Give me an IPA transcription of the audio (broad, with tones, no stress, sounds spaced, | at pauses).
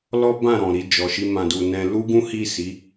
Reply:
l ɔ˦ b ã˦˨ ɾ ɔ̃˨ ɾ i˧ d͡ʒ ɔ˨ ʃ i˧ m ã˨ d u˨ n ɛ̃˧ l u˦ ɡ ũ˦ h i˦˨ s i˨˦